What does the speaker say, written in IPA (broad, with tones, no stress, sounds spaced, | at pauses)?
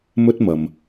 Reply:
m ɵ˥ t̚ m ɐ˨ m